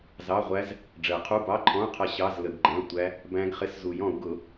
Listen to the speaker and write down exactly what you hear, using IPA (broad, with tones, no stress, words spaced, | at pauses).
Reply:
zɑ˧˥˧ʁʷæ˦˥z | ɖ͡ʐɜ˨˩˦qʰu˧˥˧bɑ˧˥˧ǃʰɔ̃˧˥˧u̯ qʰʌ˦˥ ɕɑ˧˥˧z lə˨˩˦ɡɡ͡ǃæ̃˧˥˧ltʷæ˦˥ | bæ̃˦˥ɡ χɪ˧˥˧szu˨˩˦jɔ̃˨˩˦u̯ ɡʊ˨˩˦